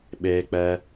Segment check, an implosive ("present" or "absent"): present